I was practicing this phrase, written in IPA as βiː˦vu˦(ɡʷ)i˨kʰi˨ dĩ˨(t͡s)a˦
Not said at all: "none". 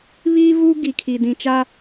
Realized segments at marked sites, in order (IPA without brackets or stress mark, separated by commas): ɡ, t͡ʃ